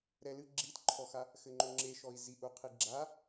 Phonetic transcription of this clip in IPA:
ɾɛlɨ ɡ͡ǁitǃʰɔxa | xɘŋ͡ǃoŋ͡ǁeʃɔi̯ ziʔuqʰi ɡ͡ǁa

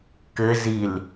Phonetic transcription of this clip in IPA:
kɘ zil

